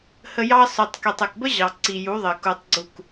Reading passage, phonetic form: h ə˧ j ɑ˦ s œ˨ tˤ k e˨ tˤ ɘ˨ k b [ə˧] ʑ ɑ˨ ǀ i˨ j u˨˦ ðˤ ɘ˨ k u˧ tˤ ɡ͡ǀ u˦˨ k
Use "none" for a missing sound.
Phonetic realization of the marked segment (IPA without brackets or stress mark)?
ə˦